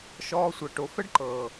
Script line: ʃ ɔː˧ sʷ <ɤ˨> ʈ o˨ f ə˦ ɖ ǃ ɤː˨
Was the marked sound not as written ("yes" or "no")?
no